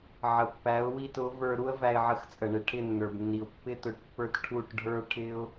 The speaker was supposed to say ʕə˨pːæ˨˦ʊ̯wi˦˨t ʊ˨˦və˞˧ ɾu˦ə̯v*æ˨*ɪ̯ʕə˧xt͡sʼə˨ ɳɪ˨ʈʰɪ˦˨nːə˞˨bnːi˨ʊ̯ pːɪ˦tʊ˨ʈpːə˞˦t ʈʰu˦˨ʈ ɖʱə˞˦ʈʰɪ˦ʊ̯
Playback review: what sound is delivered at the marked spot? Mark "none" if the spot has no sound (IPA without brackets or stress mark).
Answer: æ˧